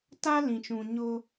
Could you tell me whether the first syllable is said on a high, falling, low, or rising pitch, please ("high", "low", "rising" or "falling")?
high